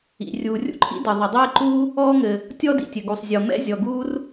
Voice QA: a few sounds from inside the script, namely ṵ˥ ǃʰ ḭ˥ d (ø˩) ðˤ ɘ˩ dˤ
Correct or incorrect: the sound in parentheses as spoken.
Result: incorrect: ɘ˩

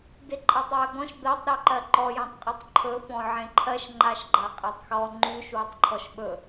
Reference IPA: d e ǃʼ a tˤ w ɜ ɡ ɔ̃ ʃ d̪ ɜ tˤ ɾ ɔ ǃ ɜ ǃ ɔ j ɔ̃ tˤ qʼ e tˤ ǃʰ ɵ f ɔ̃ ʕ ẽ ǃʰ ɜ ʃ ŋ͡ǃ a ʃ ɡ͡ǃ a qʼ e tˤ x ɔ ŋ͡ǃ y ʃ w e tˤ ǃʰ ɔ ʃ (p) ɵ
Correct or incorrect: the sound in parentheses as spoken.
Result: incorrect: ɓ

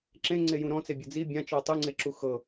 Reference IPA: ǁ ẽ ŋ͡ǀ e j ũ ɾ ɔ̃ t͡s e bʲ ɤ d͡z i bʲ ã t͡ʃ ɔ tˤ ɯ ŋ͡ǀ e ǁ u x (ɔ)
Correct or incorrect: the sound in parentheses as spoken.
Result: incorrect: ɤ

